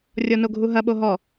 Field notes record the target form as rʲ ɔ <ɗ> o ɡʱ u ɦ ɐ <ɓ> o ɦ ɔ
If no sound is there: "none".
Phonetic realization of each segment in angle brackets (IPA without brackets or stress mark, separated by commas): n, ɓ